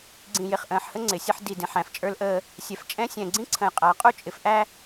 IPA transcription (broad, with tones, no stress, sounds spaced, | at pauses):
ɡ͡ǀ ĩ˨ j ɪ˨ χ ʔ ə̃ː˨ ħ h ə˦ ŋ͡ǀ ɪ˨ sʲ ə˦ ħ d i˨ d ĩ˨ ħ æ̃˨ f t͡ʃʼ ə˞˦ l ʔ əː˦ | sʲ ɛ˨ f t͡ʃʼ ɛ̃˦ sʲ ɛ̃˨ ɡ͡ǀ ĩ˦ ǀʰ ə̃˨ j qʼ æ˨˦ qʼ u˦ t͡ʃʼ ɪ˨ f ʔ æ˦